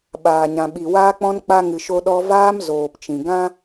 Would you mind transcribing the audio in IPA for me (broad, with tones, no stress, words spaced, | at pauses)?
ɓaː˨ɲã˨ɓi˨ waː˧k͡pɔ̃˧n k͡pa˧ŋɨ˨ ʃo˧ɗɔ˧ vaː˧m zoː˨pt͡ʃĩ˨ ɡã˦